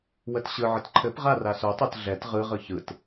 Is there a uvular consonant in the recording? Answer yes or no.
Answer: yes